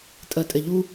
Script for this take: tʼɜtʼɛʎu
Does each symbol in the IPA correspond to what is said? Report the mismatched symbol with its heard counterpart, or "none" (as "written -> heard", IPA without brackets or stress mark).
none